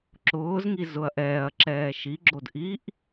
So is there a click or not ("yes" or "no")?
yes